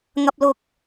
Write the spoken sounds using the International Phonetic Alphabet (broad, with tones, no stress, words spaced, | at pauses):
ŋɐ˧p̚lʊ˧k̚